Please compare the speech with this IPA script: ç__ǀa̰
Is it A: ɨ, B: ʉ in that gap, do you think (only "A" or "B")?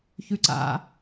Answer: B